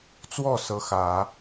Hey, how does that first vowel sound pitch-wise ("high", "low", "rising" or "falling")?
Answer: falling